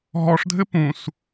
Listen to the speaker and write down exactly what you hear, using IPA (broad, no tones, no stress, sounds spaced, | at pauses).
ɦ ɔ ʂ dʱ ɘ p ũ s